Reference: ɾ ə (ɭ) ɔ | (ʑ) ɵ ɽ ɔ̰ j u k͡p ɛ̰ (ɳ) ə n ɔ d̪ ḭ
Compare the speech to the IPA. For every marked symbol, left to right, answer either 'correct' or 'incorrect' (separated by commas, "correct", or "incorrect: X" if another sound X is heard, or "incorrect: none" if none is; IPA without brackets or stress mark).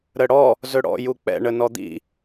incorrect: ɽ, incorrect: z, correct